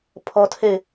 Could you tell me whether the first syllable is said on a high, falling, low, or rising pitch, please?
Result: high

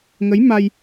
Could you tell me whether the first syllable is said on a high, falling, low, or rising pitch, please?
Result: rising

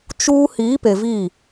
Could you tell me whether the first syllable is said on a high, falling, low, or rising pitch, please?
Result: high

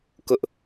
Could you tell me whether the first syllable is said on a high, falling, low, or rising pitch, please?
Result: high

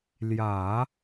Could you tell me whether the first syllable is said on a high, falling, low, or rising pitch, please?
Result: low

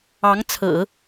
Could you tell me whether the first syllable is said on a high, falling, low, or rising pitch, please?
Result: rising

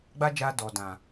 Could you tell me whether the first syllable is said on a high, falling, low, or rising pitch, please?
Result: high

